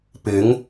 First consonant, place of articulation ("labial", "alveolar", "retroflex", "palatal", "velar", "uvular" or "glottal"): labial